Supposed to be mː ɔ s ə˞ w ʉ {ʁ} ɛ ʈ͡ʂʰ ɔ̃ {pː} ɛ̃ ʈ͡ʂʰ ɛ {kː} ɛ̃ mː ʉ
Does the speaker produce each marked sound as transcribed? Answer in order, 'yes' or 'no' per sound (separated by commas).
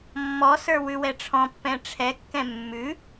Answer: no, yes, yes